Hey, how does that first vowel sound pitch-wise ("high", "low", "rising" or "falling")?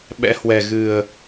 rising